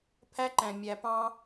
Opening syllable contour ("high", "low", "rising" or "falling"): high